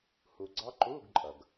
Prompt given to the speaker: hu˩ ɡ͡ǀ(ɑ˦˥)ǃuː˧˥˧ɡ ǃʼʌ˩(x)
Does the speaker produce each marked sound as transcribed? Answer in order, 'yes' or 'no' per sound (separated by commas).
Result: yes, no